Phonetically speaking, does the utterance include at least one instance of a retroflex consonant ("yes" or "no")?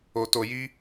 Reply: no